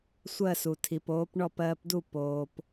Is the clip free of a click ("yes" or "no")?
yes